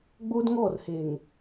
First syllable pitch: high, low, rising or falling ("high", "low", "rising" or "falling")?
high